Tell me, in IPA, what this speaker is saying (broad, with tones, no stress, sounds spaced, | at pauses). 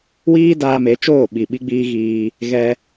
w iː˦ d aː˧ m e˨˦ t͡ʃ oː˦˨ ɓ i˨ ɓ i˧ ɡ͡b iː˧ ɣ iː˧ | ɣ ɛ˧